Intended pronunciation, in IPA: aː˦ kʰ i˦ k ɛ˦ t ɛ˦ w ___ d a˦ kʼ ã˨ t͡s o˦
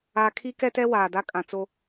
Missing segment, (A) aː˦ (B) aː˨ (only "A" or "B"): B